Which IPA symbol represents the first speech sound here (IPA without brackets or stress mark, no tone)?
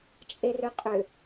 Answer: t͡ʃʼ